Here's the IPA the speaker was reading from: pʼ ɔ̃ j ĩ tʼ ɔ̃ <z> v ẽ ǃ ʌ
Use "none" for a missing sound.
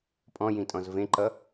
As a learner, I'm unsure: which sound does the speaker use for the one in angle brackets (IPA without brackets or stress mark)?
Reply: z